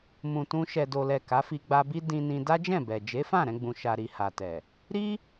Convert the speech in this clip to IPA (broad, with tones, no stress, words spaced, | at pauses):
mũ˨tũ˧ ʃɛ˨do˨lɛ˨ ka˨˦fi˧ɡ͡ba˧bi˦ dĩ˧nĩ˧ da˦d͡ʒɛ̃˦˨bɛ˨ d͡ʒe˨˦fã˦˨ ɾɛ̃˧ɡ͡bũ˨ ʃa˨ɾi˨ ha˨tɛ˨ | ɾi˦